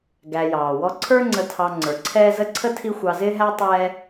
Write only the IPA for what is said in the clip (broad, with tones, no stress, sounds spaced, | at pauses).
ɡ æ˨ j ɑː˩ w ɔ˦ ǀʰ ə˞˥ ŋ͡ǀ ə˨ tʰ ɑ˨ ŋ͡ǀ ə˞˩ ǀʰ ɛː˥ z ə˥ ǀʰ ə˥ tʰ i˦ xʷ ɑ˨ z ɪː˦ ɦ æ˦ tˤ ɛː˦